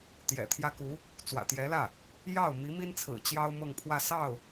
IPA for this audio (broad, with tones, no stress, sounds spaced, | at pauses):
t̪ j ɛ̰˨˩ t̪ʰ j ä˥ k u˧˥ | t͡s w ä̰˨˩ t̪ j ɛ˧˥ l ä˥˩ | j ɑ˥˩ ʊ̯ m i˧˥ m i˥ n t͡sʰ ɹ̩˨˩ t͡ɕ j ɑ˥ ʊ̯ m ɤ˥˧ ŋ pʰ w ä˥˧ s ɑ˥˩ ʊ̯